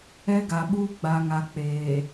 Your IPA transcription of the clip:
ɛ˦ ɡ a˨ ɓ uː˦ ɡ͡b a˨ ŋ a˨ k͡p eː˨

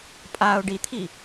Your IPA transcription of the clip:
pʼ a ʊ̯ ɖ i t̪ʰ i

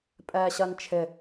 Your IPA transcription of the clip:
pʼ ɛː ɕ ɜ n t͡ʃʰ ɪ

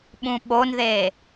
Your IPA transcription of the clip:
ɓ ũ ɓ o n ð e

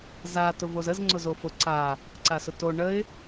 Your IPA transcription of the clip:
z a t ʊ v o z ə z ŋ͡ǀ ʊ z o f ʊ ǀ a | ǀ a s ʊ t o ɳ ə ɪ̯

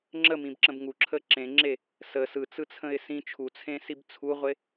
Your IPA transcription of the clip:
ŋ͡ǁ ə m ĩ b ǁ ə̃ b ŋ u ǁʰ ə ǁ ẽ ŋ͡ǁ e | s ə s ɯ t͡s ɯ t͡sʰ ə̃ ɪ̯ s ĩ t͡ʃʰ u t͡sʰ ẽ s i b t͡sʰ u ʁʷ e

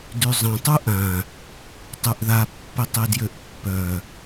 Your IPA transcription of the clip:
d y zˤ ə̃ tˤ u ʔ ã | tˤ y ʔ ð a pː i tˤ i d j ø ʔ pː œ

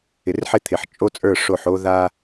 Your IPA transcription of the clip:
ɪ˨ r ħ ɪ˦ t̪ʰ ɪ˨ ħ t͡ʃʼ o˦ t͡sʼ ə˞˦˨ ʂ o˦˨ ħ o˦ ð a˦

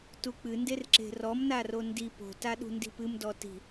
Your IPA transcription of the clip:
t u k͡p ɨ n d e r ǁ e̤ r ɔ m n a r o n d i p o̤ t a ɗ ṳ n d i̤ p ɨ m d ɔ t i̤

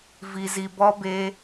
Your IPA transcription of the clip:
v i˨ z i˨ b ɔ˧ b e˧

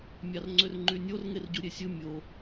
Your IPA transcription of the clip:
mʲ ɑ r ŋ͡ǀ ø r ŋ͡ǃ y nʲ o r ŋ e r ɟ u ɾʲ e sʲ ɯ mʲ o

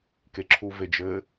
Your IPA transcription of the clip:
k e ǁʰ u v e d͡ʒ ɘ

